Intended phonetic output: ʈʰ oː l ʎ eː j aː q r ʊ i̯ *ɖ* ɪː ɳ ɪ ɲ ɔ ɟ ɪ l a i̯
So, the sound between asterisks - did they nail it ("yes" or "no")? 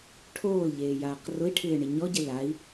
no